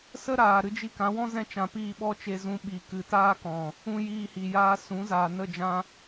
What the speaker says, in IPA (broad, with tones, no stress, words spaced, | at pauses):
sə˦ɾaː˨ ɾɨ˧d͡ʒi˧ kã˨˦wɔ̃˦ zɛ̃˧t͡ʃã˨ piː˦˨ɓɔ˦t͡ʃe˧zũ˧ ɓi˨ kɨ˨taː˦kɔ̃˨ | ũ˧ jiː˧hi˨jaː˧ sũ˨˦zaː˨nə˦˨ d͡ʒã˦